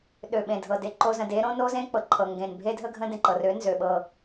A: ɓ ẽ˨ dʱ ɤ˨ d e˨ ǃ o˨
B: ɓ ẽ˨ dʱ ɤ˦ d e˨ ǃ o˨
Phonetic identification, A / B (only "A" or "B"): A